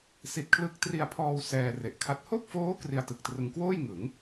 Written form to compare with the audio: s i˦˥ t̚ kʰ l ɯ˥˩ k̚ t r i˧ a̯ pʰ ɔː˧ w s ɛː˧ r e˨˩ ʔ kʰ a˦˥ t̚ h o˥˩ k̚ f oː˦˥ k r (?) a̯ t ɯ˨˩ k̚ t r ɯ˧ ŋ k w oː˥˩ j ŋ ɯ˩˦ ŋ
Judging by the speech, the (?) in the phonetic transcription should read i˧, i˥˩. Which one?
i˧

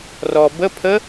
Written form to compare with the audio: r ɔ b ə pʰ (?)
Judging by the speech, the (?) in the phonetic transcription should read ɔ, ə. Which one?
ə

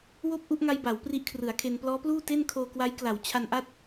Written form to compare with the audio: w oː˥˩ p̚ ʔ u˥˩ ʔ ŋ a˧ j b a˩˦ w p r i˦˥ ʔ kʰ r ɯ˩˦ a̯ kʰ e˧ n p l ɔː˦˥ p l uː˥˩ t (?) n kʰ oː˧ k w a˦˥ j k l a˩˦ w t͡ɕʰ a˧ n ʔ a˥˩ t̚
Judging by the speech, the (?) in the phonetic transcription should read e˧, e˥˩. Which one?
e˥˩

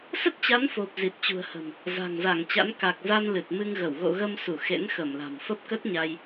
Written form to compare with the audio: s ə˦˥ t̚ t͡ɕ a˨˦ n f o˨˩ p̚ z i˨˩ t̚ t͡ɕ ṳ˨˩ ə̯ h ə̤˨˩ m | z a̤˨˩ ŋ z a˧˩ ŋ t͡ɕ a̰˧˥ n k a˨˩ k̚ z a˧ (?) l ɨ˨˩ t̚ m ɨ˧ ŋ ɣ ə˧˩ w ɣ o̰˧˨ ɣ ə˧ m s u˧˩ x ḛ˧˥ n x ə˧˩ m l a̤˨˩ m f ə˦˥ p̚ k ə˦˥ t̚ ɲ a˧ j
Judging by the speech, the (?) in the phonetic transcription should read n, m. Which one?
n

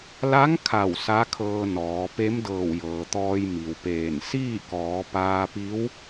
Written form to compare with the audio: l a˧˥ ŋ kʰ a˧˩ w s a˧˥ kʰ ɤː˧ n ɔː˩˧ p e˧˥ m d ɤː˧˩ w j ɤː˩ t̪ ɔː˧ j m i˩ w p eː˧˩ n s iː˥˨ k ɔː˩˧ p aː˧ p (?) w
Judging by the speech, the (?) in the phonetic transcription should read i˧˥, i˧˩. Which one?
i˧˥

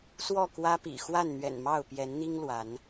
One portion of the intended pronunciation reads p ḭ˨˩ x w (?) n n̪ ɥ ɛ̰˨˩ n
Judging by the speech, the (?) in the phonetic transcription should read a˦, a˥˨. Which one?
a˥˨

